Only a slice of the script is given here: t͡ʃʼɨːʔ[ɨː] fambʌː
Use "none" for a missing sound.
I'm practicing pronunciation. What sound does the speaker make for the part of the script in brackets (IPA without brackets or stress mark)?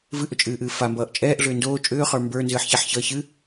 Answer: ɨː